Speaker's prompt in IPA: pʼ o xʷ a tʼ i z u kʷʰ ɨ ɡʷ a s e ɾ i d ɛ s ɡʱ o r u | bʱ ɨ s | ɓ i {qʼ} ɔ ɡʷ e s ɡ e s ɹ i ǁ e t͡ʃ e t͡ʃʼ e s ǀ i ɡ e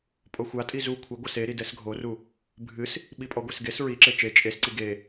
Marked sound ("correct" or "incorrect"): incorrect